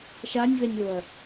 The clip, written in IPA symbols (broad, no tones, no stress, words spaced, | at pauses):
ʃanʲvɛnʲoɐ̯